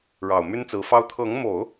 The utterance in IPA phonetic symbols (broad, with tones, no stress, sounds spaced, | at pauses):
ɻ ɑ˨˩ ʊ̯ m y˥ n t͡s ɹ̩˧˥ f ɑ˥ ʊ̯ t̪ʰ ɤ˧˥ ŋ m o˨˩˦ ʊ̯